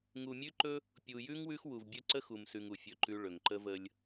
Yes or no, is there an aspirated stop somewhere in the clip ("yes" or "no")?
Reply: no